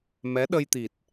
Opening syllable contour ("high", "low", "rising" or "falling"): rising